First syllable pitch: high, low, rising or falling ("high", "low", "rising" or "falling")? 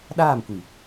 falling